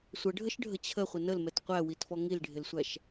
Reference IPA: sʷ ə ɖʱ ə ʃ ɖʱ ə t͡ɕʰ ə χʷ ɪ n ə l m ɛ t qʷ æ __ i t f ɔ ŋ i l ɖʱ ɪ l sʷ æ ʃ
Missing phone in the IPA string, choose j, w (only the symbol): w